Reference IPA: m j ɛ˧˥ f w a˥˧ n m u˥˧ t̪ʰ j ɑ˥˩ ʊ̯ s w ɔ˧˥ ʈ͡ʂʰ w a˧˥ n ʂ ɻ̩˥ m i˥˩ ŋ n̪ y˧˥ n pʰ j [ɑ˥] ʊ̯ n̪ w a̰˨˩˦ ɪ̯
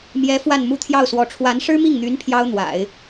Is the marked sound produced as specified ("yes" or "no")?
yes